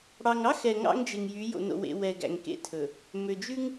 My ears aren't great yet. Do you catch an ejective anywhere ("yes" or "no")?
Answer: no